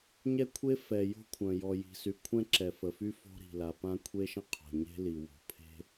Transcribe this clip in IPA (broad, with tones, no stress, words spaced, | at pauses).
ɲɛ˥kʷʰe˥ fɛ˨ jo̤˥kʷʰœ̃˨ jɔ˨ji̤˨sy˨kʷʰɛ̃˥ ǁɛ˨fə˨fy˥ fo̤˥ɾi̤˨la˨ pã˥kʷʰe˥ʃə̃˥qʰo̤˨ ɲe̤˥li˨wo̤˨pʰe̤˥